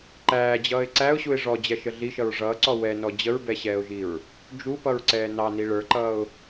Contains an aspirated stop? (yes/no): no